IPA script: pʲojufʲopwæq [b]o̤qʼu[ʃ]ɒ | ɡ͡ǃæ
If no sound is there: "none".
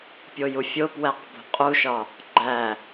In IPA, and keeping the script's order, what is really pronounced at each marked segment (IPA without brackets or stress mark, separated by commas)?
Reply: b, ʃ